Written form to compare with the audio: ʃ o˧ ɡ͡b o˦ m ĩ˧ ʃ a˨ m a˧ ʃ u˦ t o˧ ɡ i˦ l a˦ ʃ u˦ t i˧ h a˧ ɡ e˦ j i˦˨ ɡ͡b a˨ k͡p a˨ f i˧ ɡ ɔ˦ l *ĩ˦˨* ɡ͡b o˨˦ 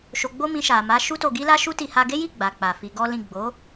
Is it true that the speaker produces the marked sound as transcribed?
yes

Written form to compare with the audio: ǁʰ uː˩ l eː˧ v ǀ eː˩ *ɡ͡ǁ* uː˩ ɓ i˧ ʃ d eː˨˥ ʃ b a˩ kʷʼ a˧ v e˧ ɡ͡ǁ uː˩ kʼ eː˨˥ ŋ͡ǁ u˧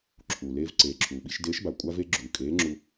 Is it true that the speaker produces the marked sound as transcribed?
no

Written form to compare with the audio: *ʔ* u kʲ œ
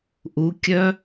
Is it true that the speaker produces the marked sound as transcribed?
yes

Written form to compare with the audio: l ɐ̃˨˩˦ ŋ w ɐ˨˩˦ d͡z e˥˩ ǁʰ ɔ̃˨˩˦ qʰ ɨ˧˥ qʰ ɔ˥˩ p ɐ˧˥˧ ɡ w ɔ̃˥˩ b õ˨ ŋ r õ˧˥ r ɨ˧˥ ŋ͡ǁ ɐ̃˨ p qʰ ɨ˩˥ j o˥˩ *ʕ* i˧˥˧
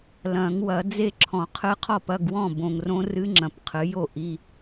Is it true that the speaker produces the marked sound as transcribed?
no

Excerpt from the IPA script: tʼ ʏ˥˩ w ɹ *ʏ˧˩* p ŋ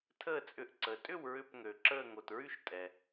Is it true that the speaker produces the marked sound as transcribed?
yes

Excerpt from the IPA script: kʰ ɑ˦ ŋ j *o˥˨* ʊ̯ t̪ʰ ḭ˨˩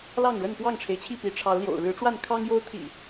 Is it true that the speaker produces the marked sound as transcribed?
no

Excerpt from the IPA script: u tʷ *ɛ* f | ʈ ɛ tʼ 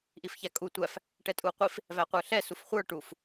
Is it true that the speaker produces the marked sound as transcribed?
no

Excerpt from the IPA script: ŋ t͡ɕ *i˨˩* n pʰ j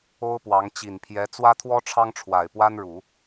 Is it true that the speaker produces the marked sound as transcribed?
yes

